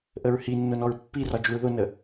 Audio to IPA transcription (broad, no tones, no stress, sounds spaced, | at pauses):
ʔ ə ɹ h i nː ʊ n ɔ ɹ pː i r ɒ d͡ʒ u ɹ ð ʊ n ə